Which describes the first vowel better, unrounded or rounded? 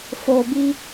rounded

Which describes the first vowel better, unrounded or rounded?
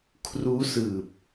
rounded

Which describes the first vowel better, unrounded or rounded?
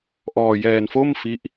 rounded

